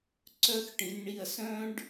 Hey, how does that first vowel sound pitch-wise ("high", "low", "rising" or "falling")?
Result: high